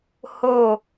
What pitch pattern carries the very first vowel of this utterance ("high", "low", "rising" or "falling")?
falling